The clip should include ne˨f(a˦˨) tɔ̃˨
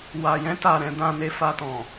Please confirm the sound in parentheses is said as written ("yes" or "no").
no